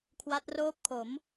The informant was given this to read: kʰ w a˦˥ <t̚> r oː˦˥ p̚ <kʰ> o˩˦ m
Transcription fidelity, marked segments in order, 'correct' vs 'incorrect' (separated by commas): correct, correct